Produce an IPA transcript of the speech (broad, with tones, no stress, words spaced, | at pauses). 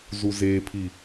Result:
zu˨zeː˨pʰi˨